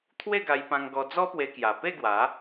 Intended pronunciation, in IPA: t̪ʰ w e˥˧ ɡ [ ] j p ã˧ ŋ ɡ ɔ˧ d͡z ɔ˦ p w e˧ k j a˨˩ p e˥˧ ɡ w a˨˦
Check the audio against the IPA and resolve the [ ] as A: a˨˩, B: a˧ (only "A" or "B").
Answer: B